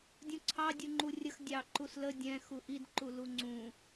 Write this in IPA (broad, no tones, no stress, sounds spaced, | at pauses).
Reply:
dʲ ũ ǀʰ ɑ dʲ u ŋ͡ǃ u rʲ ə x dʲ ɑ ǃ u s l ə dʲ ɛ̃ x u ʔ i d ǃ u l u ŋ͡ǀ ũ